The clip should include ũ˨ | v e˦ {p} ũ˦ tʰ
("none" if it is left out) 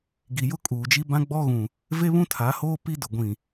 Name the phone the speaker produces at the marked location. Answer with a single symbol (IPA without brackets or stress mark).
β